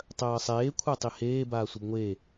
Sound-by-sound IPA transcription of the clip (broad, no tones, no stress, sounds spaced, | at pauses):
tˤ ɜː sˤ eː kʷʰ a tˤ i h eː b aː sʷ ə b ŋʷ e